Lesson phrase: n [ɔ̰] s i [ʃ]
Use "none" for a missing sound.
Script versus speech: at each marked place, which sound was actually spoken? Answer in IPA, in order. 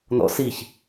ɔ̰, ç

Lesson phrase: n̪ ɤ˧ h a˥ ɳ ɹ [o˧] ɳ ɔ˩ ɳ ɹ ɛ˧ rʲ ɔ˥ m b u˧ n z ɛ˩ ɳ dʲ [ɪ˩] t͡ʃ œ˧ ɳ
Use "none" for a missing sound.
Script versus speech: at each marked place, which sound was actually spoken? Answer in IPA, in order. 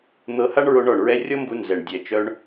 o˧, ɛ˩

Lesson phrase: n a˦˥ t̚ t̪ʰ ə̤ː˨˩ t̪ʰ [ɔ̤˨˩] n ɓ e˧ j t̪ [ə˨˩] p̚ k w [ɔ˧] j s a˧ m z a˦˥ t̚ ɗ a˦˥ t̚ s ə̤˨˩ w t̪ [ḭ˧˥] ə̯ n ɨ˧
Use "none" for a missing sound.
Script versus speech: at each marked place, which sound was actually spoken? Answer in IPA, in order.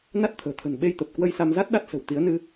ə̤˨˩, ə˨˩, ə˧, i˨˦

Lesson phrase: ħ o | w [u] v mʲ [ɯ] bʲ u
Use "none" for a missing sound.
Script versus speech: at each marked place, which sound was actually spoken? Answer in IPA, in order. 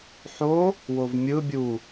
o, ɯ

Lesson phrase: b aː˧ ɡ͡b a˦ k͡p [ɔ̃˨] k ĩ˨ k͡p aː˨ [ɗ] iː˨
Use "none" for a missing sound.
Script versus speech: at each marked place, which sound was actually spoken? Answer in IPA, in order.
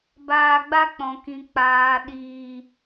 ɔ̃˨, ɗ

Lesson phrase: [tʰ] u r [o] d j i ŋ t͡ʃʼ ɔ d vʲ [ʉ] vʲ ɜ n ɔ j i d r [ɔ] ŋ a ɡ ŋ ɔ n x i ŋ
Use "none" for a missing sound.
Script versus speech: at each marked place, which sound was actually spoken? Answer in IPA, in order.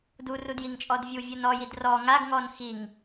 d, u, u, ɔ

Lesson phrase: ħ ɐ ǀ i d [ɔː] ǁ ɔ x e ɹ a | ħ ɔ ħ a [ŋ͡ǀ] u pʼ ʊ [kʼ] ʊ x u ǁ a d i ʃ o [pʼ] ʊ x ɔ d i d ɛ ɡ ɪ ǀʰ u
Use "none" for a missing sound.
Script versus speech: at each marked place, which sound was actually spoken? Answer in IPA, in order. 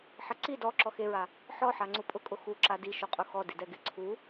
ɔ, ŋ͡ǀ, kʼ, qʼ

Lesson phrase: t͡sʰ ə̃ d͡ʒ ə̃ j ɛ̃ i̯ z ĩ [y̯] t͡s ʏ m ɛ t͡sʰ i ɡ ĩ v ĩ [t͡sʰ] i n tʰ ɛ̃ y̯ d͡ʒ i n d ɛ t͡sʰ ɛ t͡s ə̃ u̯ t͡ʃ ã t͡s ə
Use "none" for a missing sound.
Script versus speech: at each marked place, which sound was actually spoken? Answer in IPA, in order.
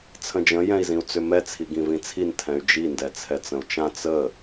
u̯, t͡sʰ

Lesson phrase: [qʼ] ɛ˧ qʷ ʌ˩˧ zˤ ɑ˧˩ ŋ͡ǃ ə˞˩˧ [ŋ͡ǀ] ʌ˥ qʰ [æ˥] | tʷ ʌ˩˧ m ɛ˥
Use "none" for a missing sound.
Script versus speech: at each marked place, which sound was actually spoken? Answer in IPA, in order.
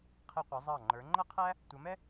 qʰ, ŋ͡ǃ, æ˥

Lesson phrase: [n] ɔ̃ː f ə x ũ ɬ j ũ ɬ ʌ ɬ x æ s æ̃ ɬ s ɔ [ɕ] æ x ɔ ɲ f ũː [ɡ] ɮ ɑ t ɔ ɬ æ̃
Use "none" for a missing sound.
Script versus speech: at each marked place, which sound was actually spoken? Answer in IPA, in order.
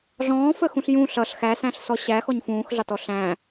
ɮ, ɕ, x

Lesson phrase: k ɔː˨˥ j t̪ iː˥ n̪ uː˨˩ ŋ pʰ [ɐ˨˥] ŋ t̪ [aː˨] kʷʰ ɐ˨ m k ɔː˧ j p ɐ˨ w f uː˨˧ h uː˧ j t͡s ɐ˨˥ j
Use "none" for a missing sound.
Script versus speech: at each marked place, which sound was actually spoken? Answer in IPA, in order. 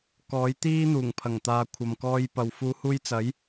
ɐ˨˩, aː˨

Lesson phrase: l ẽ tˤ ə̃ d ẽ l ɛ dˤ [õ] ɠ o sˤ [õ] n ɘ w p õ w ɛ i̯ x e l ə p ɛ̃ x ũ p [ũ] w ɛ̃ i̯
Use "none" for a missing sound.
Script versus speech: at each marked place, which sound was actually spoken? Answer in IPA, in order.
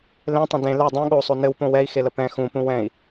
ũ, o, ũ

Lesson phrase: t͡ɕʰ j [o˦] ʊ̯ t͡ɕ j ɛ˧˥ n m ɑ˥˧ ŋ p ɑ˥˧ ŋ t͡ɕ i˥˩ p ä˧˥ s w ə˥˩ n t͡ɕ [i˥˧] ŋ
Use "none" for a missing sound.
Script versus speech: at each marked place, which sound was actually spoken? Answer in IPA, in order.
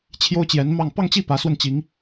o˥, i˧˥

